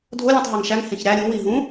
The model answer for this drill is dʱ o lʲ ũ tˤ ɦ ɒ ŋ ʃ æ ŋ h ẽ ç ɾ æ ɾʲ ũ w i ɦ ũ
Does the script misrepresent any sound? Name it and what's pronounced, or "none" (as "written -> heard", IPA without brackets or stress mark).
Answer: none